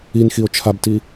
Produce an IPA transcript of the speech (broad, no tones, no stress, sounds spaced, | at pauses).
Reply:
i n x i o̯ t͡ʃʰ a b t i